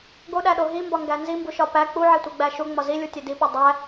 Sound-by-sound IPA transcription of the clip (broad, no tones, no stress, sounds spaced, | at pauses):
ɡ o ɗ æ ɗ o ɦ i m b ɒ ŋ ɡ æ n z i m b u ʃ ɒ p æ k͡p u ʕ e tʷ i ɡ͡b æ ʃ u ŋ͡m ɒ z i lʲ u tʲ e d i p o dˤ æ